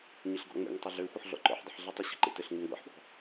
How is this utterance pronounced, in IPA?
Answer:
ɲ ɘ ɬ ɡ ɔ̰ ŋ͡m ḛ ŋ tˤ ɘ ɮ ø xʷ ə ħ ɮ ɔ̰ ǃ ɔ̰ ħ dˤ ə ħ ɮ ə tˤ ɘ ɕ ə̤ ǃ ḛ t ɘ ɬ ŋ ʉ ŋ ɡʷ ḛ ħ ɓ ɔ̤

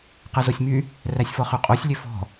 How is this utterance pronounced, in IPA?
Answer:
q ɛ z o sʲ m y | r æ sʲ f ɔ χ ø qʼ o sʲ lʲ ø f ɔ̤

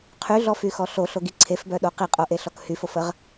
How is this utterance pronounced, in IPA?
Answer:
qʰ y ɮ ɔ f y x ɔ ɬ o ɬ o ɡ i ǀʰ e f b œ ɗ o q i qʼ o ʔ e ɬ ɔ k h y f o f ə ʁ

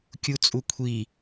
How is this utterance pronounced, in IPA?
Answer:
kʲ u t͡sʼ u kʷʰ i

